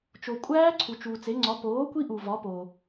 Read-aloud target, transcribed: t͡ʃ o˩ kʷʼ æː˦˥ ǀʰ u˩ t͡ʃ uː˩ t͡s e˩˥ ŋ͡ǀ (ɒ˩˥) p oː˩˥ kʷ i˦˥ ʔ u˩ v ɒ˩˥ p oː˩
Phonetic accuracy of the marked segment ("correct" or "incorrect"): correct